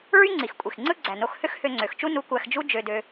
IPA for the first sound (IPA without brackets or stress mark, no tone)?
ɹ